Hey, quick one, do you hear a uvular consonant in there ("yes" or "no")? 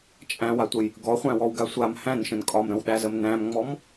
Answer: yes